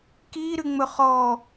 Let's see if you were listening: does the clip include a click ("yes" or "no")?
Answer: no